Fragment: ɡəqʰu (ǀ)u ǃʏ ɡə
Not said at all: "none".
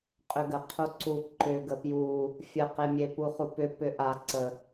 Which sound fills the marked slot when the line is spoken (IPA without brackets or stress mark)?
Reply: ǀ